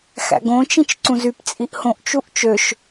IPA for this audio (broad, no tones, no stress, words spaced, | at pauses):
xæ̰ɡõt͡ʃĩt͡ʃ ǀũzypt͡sʼiʔ hõʔt͡ʃuʔ t͡ʃøʃ